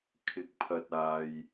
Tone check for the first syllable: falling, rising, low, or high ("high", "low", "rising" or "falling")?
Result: low